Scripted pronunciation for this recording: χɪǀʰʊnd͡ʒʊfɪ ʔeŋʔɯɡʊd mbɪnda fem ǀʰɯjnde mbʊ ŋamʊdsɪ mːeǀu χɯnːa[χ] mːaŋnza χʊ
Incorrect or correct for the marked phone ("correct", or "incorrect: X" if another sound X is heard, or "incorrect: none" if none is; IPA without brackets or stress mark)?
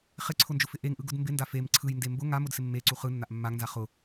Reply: incorrect: ʔ